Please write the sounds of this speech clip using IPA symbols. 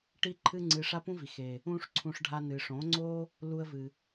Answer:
ʈ i˦ ǃʰ ɨ˦ ŋ͡ǀ ɨ˧ ʂ a˦ p ũ˦ v i˨ x eː˨ | ũː˦ ʂ ǀʰ ũ˧ ʂ ɖʱ a˧ n ɨ˨ ʂ õ˨˦ ŋ͡ǀ o˦ | l u˧ ə̯ v ɨ˨

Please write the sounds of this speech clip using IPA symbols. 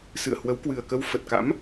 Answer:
s ɨ̰˧˨ ə̯ h w ə˨˦ w k w ɨ˨˩ ə̯ k ə˧ w f ə˨˩ t̚ k a̰˧˥ m

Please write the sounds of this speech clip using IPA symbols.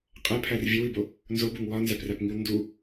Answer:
qʼ æ pʰ æ r vʲ e w i b o | n z o b u ŋ w ɒ n z æ p r æ p ŋ i w n d u

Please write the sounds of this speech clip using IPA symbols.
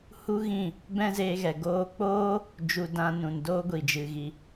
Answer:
h u˦ ɣ ĩ˦˨ | b ɛ̃˦ z eː˧ ɣ ɛ˨ ɡ oː˧ k͡p oː˦ | d͡ʒ u˧ d ã˧ n ũ˨ n d oː˦ ɡʷ i˨ d͡ʒ ɨ˨ ɣ i˧

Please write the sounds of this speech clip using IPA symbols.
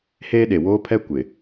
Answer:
h eː˦ ɗ e˨ w oː˦ pʰ ɛ˦ kʷ ɪ˨

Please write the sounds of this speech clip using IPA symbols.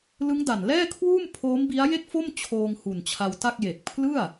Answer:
l ɯ˦˥ ŋ d a˨˩ n l ɛː˥˩ kʰ w uː˥˩ m pʰ oː˦˥ m b i˦˥ a̯ j e˥˩ k̚ f o˥˩ m t͡ɕʰ oː˧ ŋ h u˨˩ n t͡ɕʰ a˧ w t a˥˩ k̚ j e˨˩ k̚ pʰ l ɯ˥˩ a̯

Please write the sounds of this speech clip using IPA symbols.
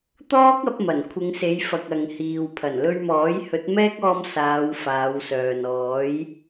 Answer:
t̪ ɔː˥ k̚ ɐ˧ p̚ m ɐ˨˩ n kʷʰ ɪ˨˧ ŋ s e˨˧ j f ɐ˨ k̚ ɐ˨ ŋ h iː˨ w pʰ ɐ˨˩ n l ɵ˧ ɥ m ɔː˨˥ j h ɵ˨˥ t̚ m ɛː˥ k̚ ɔː˧ m s aː˨˧ w f aː˨˧ w s œː˨ n ɔː˨˥ j

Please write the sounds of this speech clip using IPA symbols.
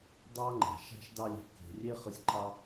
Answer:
dˤ ɑ˦ ŋ͡ǃ æ̤˨ ʃ æ̤˦ ʃ d ɑ˦ lʲ e̤˧ k e̤˧ rʲ e˦ χ ɯ˧ sʲ ǃʰ ɑ˦

